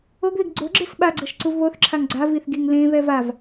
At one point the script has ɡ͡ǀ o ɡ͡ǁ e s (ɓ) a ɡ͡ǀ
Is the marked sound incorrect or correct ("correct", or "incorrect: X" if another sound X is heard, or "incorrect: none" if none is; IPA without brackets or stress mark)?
correct